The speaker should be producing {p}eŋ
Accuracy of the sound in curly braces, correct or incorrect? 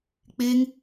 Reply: incorrect